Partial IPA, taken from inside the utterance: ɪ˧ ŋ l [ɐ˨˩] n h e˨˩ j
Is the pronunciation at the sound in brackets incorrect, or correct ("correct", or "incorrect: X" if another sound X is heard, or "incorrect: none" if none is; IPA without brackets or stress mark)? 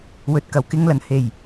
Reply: correct